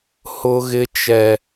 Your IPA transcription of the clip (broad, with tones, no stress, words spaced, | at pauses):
hʊ˦ɣɪ˦t͡ʃɛ˦